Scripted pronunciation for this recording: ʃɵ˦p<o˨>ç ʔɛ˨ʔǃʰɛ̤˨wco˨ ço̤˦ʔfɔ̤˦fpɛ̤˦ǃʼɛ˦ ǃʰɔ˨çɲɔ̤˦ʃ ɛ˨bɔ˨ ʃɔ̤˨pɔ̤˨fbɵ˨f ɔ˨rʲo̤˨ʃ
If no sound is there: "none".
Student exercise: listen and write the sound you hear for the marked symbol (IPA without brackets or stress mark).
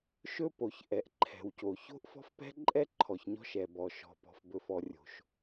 o˨